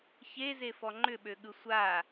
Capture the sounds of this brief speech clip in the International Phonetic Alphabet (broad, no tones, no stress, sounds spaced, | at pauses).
ç e z e f ɔ ŋ͡ǃ ʏ ɓ ø ɠ ɯ sʷ a